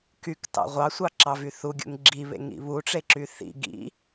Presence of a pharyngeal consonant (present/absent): absent